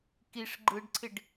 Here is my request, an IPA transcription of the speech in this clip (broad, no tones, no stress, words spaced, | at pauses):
kiʂ ɡ͡ǃɯɖǀʰɪɖ